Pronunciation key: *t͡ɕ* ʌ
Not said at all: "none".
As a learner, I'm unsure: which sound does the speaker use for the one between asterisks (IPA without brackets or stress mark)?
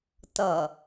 t